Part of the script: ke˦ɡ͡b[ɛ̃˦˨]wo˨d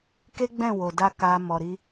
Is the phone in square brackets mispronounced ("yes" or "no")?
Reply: no